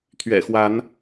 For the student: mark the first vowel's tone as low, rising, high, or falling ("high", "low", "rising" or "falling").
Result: low